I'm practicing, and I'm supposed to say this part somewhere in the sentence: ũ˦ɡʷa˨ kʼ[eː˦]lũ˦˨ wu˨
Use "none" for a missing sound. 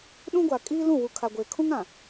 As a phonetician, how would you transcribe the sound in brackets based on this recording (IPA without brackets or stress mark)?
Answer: iː˦